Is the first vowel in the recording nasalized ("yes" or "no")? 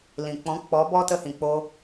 yes